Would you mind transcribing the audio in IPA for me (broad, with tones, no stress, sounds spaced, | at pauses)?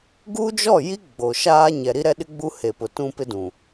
ɡ u˦ d͡ʒ ɔ˦˨ j i˦ ɡ͡b o˨ ʃ aː˦ ɲ ɛ˨ ɾ i˦ ɾ ɛ˦ ɗ ɪ˦ ɡ͡b u˦ h e˨ p ʊ˨ t ũ˦ p ɪ˦ d ũ˨